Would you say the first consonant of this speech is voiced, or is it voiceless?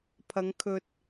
voiceless